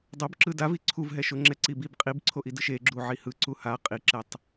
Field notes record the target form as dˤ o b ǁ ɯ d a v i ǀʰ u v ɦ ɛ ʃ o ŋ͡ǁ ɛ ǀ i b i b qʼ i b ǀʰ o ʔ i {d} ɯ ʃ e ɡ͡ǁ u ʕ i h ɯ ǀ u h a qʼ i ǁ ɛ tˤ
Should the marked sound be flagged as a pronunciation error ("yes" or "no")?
no